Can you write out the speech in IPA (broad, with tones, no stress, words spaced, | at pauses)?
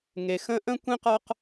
ŋe˩xə̃˥ ʔə̃˥kʷẽ˥qɒ˦q